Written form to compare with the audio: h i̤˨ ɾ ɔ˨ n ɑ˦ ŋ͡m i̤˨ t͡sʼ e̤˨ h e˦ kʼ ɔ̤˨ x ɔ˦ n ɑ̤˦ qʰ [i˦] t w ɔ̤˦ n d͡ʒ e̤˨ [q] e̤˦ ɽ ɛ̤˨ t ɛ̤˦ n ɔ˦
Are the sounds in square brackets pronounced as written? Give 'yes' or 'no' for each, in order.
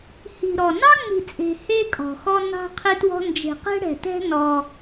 yes, yes

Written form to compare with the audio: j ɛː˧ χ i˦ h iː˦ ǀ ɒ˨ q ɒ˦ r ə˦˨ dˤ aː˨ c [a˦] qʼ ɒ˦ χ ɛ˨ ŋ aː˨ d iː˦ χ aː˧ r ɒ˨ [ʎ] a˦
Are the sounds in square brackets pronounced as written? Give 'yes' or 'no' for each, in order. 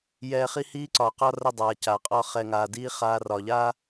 no, yes

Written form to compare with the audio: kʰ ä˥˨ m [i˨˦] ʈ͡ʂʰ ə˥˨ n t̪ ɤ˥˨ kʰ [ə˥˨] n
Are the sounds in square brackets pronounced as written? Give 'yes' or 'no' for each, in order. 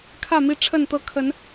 no, no

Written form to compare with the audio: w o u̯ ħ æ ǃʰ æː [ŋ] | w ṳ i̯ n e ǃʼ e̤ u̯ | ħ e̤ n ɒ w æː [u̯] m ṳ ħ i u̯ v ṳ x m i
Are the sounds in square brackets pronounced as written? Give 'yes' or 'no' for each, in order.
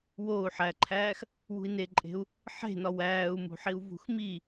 no, yes

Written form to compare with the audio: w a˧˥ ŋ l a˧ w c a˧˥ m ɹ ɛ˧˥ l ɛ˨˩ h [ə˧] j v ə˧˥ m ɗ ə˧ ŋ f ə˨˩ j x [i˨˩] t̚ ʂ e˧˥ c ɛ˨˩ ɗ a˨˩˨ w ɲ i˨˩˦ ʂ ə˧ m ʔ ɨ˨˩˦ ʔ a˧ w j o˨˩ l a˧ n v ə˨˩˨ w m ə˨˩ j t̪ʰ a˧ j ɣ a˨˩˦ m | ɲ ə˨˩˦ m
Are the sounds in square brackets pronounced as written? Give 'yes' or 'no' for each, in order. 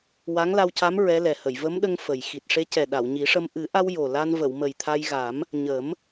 no, yes

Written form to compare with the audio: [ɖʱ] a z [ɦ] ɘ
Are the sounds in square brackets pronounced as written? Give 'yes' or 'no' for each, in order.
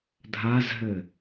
no, yes

